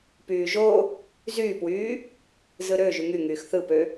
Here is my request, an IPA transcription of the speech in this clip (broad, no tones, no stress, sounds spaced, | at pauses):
p yː ʒ o | z yː p w yː | z ɯ ɾ ø ʒ y ŋ y ŋ yː x θ ɯ p ø